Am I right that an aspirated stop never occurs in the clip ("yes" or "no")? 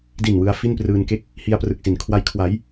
no